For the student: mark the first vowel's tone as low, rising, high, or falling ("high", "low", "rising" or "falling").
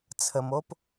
low